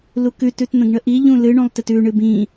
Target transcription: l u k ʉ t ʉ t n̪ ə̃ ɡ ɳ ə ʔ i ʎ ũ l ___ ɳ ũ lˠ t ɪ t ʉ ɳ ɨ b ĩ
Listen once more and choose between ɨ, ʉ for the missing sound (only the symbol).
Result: ɨ